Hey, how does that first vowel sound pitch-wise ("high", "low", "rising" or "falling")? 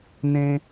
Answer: high